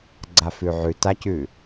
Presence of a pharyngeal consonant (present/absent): present